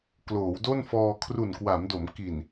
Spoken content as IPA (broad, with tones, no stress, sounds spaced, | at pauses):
k l oː˩˦ w d o˥˩ n f ɔː˧ kʰ r u˨˩ n k w a˩˦ m d o˩˦ m k i˨˩ n